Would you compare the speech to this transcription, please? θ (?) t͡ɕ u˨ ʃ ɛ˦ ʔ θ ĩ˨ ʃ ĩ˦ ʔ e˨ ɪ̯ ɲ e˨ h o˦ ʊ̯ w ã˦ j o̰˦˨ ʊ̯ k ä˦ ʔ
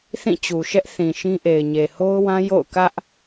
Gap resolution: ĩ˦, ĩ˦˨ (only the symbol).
ĩ˦˨